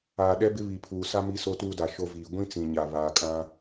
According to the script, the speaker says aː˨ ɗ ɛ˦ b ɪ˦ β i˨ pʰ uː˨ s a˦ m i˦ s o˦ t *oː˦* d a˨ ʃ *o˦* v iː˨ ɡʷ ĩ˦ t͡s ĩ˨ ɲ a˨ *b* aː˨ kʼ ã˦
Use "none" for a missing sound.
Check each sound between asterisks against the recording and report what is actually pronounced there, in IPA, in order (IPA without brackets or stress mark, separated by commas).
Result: uː˦, o˦, β